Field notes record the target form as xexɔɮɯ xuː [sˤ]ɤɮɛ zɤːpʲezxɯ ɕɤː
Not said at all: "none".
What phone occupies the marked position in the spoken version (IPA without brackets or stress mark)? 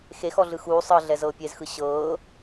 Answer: sˤ